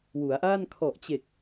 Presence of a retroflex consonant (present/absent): absent